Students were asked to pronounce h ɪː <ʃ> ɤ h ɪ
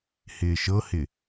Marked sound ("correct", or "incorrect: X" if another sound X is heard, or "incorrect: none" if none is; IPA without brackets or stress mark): correct